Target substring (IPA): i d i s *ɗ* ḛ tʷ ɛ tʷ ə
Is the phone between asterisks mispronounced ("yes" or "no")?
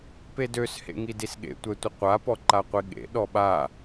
yes